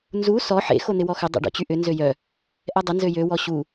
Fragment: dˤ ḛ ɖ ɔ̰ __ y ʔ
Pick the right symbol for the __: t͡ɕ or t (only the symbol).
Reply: t͡ɕ